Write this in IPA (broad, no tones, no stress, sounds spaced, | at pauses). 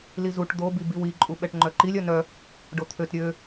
l i z u ʈ d̪ o b i b i w i ǃʼ u ɓ ɛ ʈ ŋ͡ǃ œ ǃ i lʲ œ n œ | ɖ o t̪ʰ ø t ɾʲ ø